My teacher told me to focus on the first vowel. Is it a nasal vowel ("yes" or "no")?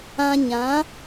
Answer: yes